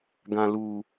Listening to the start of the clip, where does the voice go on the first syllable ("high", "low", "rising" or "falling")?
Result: low